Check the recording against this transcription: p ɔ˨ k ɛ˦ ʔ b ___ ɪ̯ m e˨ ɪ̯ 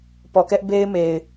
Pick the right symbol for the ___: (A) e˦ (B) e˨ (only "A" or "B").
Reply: A